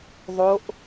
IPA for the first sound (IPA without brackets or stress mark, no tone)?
ðˤ